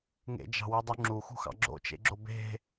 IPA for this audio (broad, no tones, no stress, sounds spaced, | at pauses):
ŋ ḛ d͡ʒ ɑ̤ w y dˤ y ŋ͡ǁ u x ṳ x ɑ̰ ɡ͡ǁ o̰ t͡ʃ ḛ ɡ͡ǁ o b e̤